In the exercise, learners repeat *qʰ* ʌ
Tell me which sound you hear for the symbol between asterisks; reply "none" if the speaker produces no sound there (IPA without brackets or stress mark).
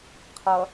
qʰ